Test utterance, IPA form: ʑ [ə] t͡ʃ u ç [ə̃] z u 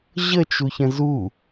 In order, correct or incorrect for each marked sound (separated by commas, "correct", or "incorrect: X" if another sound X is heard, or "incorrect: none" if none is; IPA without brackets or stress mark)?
correct, correct